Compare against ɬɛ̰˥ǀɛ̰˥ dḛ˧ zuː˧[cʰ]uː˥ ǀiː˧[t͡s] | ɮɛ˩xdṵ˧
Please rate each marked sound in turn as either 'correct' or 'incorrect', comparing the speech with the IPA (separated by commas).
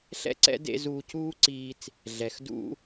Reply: correct, correct